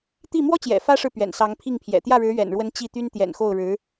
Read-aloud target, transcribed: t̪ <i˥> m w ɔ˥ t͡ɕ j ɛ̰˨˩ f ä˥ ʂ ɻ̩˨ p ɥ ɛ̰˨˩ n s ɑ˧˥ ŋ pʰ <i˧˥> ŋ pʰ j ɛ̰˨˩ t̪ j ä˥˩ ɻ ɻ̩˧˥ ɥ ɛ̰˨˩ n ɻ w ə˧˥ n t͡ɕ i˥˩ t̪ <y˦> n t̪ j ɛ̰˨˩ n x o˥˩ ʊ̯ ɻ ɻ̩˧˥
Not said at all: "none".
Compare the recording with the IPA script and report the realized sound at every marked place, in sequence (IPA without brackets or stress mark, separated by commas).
i˥˩, i˥˩, y˥